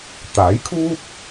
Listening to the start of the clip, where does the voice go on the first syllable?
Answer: rising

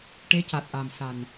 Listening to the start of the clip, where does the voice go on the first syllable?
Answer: rising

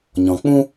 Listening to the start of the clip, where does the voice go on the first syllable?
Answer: low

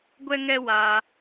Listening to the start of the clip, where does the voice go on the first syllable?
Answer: high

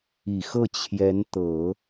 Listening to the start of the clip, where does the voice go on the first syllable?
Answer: low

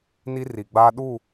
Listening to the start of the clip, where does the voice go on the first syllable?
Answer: high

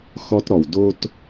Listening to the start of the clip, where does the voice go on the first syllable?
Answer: high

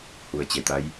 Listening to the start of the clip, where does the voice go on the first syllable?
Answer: low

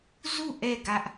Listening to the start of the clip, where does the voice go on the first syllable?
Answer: falling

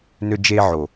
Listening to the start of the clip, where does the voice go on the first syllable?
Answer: high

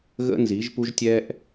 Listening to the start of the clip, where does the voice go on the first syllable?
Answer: high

